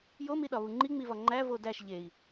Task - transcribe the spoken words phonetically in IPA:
j o m i ɗ ɒ β u ŋ͡ǃ i ŋ͡m i v ɒ ŋ͡ǃ æ v o d æ ʃ ʎ e i̯

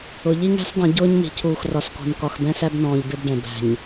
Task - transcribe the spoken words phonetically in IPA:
ʊ˨ ʎ i˦ ŋ æ̤˦ s dˤ ĩ˨ ɟ ʊː˦ ɲ n i̤˨ cʰ uː˨ x r ɒ˨ s k ɔ̤˨ n k ɒ˨ x b ɛ̃˦ s æ˦ b n ɔ̃ː˨ ʎ b ɪ˦ b ɖ ɛ̃˨ b æ̤˨ ɲ

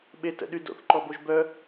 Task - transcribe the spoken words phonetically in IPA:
ɓ e t ə̰ ɗ y d o̰ θ ǃ ɔ b o ʒ b œ

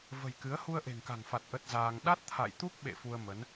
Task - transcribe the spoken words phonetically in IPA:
v ə̤˨˩ j k ɨ˨˦ ə̯ h u˧ ə̯ ʔ e̤˨˩ ŋ k a̤˨˩ ŋ f a˨˩ t̚ ʔ ə˦˥ t̚ z aː˧ ŋ ɗ a˦˥ t̚ t̪ʰ a̰˧˨ j t̪ u˦˥ k̚ ɓ ḛ˧˨ f u˧ ə̯ m ə˨˦ n

